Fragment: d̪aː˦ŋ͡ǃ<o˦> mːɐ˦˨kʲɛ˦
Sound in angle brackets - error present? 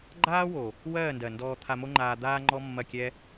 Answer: yes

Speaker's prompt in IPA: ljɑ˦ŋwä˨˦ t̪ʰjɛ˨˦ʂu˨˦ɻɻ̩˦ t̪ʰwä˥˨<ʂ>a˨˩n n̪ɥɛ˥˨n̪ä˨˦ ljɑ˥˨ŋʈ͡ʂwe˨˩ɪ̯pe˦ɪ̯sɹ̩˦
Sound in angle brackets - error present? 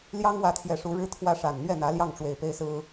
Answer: no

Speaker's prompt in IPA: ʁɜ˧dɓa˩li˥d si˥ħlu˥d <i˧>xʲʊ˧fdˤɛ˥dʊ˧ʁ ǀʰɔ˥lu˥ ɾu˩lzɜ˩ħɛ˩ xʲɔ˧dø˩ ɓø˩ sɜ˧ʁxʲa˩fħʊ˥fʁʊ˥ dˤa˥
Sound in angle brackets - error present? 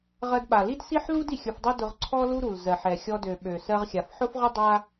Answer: yes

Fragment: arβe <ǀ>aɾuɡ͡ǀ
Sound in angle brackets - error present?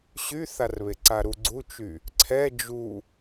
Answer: no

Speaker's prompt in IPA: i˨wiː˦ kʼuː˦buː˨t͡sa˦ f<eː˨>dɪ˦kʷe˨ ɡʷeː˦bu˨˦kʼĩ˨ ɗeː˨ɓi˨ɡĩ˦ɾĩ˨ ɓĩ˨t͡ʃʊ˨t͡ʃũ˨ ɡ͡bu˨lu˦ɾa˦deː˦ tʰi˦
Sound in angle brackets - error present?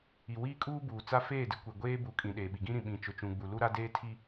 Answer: yes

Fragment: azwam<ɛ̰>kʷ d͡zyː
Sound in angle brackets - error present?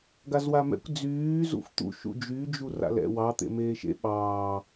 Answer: no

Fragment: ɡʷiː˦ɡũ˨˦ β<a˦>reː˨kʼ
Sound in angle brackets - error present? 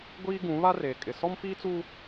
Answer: no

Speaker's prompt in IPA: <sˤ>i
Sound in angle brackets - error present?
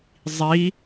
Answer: yes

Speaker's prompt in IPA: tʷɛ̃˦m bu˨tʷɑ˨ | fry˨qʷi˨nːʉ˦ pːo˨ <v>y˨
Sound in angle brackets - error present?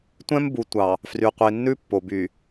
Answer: yes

